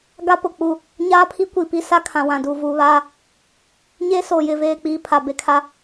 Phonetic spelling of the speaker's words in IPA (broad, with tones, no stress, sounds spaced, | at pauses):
ɡ a˦ p ʊ˨ k͡p u˦˨ | ɲ aː˦ pʰ i˦ kʷ i˨ p i˦ s a˦ kʰ ã˨ w ã˨ d uː˨ v uː˨ β aː˦ | ɲ eː˦ s oː˨ j ɪ˦˨ v eː˦˨ k͡p iː˦ pʰ a˨ b e˦ kʰ a˦